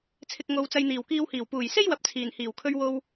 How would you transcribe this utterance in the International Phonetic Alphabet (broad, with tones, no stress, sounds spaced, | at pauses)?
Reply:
t͡sʰ ɪ˨ k̚ ŋ o˨˧ w t͡s ɐ˧ j n̪ iː˨˩ w k iː˧ w h iː˨˩ w p uː˨˩ j s e˥ j w ɐ˨˥ p̚ t͡sʰ iː˨˩ n h iː˨˩ w kʰ ɵ˧ ɥ w o˧ w